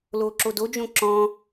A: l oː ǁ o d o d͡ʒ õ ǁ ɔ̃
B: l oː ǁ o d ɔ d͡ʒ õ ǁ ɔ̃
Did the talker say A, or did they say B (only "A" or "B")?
A